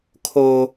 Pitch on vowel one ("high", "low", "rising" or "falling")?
high